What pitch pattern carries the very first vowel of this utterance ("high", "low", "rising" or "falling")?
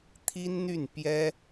high